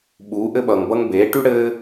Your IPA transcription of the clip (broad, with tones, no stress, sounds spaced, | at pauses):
ɓ uː˨˦ ʔ ɘ˦ ɓ ʌː˨ ŋ b ʌ˦ ŋ b eː˨˦ ʈ y˦ ɽ ɘː˦